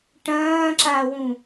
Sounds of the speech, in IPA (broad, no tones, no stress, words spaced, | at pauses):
ʈɐ̃ːǁawũ